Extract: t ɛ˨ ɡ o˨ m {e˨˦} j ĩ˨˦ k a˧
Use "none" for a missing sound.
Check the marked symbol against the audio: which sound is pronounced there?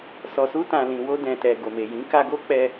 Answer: e˨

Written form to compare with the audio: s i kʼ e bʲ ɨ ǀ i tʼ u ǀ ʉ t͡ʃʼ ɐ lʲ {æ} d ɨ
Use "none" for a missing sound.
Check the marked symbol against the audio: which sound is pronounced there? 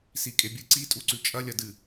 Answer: ɐ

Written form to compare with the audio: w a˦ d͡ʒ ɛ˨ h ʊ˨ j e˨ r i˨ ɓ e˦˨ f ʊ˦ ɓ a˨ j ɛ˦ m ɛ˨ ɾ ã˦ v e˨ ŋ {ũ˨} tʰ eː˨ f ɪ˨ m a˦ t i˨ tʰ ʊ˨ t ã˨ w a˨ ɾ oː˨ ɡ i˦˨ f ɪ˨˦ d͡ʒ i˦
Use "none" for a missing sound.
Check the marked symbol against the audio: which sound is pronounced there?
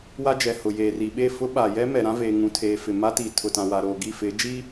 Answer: ũ˨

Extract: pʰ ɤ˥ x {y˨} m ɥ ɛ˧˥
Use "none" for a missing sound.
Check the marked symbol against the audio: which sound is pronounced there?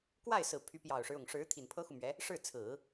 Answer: u˨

